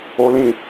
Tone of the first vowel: high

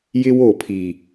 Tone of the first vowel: high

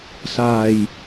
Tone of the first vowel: low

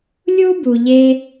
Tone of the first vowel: high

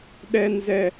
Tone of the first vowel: low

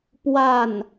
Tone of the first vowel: falling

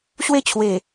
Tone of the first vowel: falling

